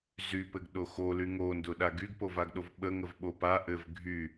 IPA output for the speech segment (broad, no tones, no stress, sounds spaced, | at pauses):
z y p ɘ ɡ ɗ o x o l y ŋ o n d ʊ ɗ a ɡ y ɡ p o v a ɡ ɗ o v ɓ ə ŋ ə v ɓ o p a ʔ ɘ v ɡʱ y